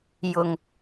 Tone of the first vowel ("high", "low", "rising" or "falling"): low